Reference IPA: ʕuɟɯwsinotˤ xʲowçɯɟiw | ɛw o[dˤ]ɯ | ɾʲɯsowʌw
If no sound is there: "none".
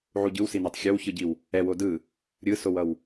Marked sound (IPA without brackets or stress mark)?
d